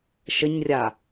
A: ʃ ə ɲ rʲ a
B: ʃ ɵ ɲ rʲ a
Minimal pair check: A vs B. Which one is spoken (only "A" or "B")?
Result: A